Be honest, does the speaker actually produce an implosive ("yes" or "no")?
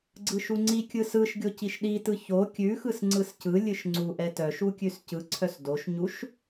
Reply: yes